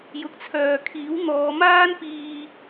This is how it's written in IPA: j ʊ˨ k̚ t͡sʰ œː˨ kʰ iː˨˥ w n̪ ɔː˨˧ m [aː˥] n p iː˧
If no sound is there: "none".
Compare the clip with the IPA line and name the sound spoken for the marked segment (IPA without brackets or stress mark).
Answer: aː˥